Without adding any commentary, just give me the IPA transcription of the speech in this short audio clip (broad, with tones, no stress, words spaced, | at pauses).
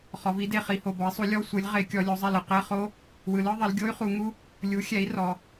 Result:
χɔ˩˧vi˩˥de˧˩χi˧˩ ho˧˩bɔ˩˥i̯sˤu˩˥ lʲɔ˧˥˧ sʷɯ˩˧lʲ ʁe˧˩˧kʲɔ˩˧ lʲo˩˧zˤɛ˧˩lɯ˧˩ qɛ˧˥˧χo˦˥ | wɯ˩˧lɯ˧˥˧ðˤi˩˧l ɡʲo˦˥y̯χu˩˧ŋu˦˥ | lʲu˩˥xʲɛ˩˥i̯ rɔ˩˧